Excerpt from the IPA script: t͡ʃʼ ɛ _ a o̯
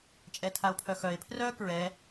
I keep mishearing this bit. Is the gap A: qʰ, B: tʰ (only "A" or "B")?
B